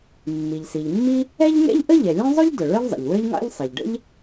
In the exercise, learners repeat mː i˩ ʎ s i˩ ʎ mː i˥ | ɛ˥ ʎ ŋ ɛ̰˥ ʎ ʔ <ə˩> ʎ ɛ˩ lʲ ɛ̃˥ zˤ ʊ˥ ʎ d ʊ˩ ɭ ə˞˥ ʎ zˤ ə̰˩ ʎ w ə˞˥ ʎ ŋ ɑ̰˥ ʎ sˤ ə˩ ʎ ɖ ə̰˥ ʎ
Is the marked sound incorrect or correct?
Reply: incorrect